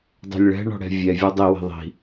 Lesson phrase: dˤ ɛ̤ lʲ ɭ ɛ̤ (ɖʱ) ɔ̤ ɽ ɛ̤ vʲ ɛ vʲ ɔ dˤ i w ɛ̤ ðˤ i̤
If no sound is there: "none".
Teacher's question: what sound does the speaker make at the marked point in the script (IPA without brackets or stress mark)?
ɳ